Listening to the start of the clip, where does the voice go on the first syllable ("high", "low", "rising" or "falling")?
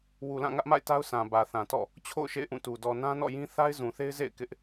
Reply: low